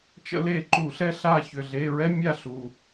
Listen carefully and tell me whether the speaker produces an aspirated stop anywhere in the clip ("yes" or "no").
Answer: no